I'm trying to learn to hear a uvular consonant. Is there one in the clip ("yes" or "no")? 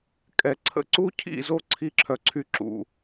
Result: no